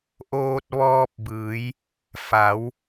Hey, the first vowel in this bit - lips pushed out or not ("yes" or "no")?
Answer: yes